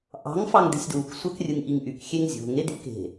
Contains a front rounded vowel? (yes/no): yes